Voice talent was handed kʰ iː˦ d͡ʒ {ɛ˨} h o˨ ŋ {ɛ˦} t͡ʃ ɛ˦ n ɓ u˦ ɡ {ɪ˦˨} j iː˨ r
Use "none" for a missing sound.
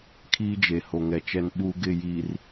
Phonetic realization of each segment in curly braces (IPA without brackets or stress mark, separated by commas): e˨, ɛ˨, ɪ˦˨